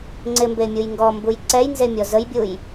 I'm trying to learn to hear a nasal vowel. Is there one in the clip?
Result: no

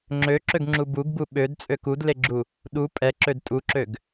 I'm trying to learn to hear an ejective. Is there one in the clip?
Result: yes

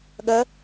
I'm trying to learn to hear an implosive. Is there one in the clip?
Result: yes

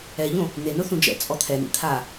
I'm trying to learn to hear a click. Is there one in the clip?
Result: no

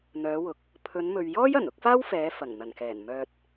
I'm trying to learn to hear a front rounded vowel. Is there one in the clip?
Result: yes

